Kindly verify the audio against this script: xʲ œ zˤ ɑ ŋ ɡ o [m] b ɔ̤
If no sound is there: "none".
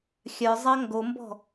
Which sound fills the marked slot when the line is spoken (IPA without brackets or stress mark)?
m